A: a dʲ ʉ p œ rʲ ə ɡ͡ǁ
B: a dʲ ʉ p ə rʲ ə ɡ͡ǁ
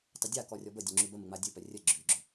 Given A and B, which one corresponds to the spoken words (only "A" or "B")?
A